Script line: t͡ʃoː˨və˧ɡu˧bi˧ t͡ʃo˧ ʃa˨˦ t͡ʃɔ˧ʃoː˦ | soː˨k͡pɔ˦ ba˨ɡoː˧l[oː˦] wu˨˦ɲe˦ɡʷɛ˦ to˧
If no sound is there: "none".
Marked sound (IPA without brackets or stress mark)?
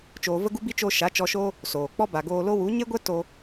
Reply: o˦